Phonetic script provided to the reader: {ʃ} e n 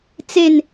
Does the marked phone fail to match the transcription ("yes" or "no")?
yes